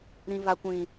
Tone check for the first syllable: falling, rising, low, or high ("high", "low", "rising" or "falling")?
high